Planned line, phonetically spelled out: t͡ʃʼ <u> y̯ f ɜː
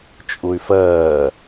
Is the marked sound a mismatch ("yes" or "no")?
no